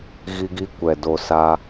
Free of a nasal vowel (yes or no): yes